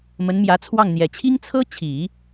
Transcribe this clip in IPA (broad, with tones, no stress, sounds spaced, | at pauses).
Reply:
m ə˧˥ n m j ä˧˥ t͡sʰ w ɑ˥˩ ŋ n̪ j ɛ˨˩ t͡ɕʰ i˥ ŋ t͡sʰ ɤ˥ t͡ɕʰ i˨˩˦